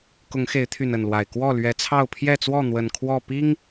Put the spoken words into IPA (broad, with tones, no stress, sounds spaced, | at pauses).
k ʊ˨˦ ŋ x e˨˦ ɪ̯ t̪ʰ y˨˩ n ə˥˨ n l w a˨˩ ɪ̯ k w ɔ˥˨ l ɥ ɛ˨˦ t͡sʰ ɑ˥˨ ʊ̯ pʰ j ɛ˥˨ t͡s w ɔ˥˨ n̪ w ə˨˩ n kʰ w ɔ˥˨ p i˦ ŋ